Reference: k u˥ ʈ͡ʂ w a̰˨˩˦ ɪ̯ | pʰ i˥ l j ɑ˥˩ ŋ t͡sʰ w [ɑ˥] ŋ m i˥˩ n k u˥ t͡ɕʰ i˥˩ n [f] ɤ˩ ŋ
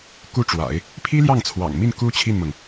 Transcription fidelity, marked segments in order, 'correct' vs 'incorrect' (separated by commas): incorrect, incorrect